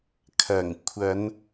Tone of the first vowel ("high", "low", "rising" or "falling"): low